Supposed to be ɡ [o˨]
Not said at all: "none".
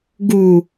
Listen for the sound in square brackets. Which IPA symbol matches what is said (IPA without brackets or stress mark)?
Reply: u˨